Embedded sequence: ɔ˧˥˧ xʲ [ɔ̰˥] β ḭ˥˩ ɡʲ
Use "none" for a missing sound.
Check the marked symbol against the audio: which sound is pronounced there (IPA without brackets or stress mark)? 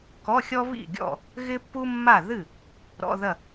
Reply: ɔ˥